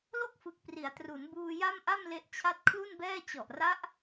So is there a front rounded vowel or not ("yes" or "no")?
no